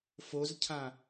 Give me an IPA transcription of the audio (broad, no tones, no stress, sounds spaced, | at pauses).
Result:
f o z cʰ ã